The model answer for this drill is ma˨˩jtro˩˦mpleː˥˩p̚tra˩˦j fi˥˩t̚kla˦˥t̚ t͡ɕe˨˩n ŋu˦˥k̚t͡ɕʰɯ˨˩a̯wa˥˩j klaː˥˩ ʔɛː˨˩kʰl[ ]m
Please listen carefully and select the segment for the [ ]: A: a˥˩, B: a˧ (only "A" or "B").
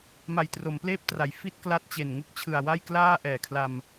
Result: B